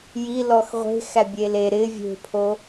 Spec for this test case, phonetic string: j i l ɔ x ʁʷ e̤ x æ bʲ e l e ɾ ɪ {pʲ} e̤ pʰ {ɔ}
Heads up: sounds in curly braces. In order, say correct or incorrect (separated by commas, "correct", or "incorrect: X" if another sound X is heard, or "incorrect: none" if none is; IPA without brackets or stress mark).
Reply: incorrect: vʲ, incorrect: o